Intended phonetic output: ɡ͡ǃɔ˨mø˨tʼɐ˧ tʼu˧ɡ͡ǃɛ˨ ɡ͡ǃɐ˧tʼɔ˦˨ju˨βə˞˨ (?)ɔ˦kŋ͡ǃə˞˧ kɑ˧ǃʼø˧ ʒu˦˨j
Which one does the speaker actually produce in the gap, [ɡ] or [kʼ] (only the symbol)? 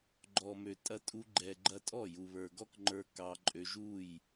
ɡ